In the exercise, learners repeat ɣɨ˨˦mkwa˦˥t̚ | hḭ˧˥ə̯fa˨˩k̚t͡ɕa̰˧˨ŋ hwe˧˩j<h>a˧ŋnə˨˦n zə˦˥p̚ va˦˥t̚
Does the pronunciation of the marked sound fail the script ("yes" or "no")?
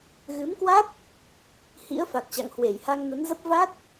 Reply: no